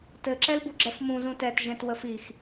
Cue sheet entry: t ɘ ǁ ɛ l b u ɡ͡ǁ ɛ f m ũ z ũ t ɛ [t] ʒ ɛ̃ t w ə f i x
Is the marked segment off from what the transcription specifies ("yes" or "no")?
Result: no